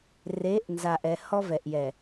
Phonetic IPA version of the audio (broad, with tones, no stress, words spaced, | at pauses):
re˨˦ʔnza˨ʔɛ˨ hɔ˦vɛ˨ʔjɛ˨